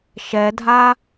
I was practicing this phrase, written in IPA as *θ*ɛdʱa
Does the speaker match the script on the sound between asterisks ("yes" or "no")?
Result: no